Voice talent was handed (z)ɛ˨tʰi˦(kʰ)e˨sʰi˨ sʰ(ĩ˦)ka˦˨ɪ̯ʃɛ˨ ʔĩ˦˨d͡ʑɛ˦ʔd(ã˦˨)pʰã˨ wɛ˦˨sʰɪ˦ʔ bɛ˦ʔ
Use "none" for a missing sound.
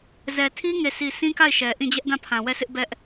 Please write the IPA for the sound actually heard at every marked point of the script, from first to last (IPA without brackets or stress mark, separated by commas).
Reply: z, ŋ, ĩ˦, ã˦˨